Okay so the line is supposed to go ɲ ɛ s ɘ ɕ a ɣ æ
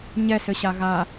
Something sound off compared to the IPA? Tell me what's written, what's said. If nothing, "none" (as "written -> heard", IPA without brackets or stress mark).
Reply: æ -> a